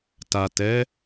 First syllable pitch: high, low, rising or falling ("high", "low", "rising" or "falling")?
low